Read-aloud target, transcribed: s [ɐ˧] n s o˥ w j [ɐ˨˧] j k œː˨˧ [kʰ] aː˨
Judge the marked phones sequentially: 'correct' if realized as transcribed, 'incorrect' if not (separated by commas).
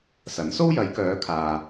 incorrect, correct, correct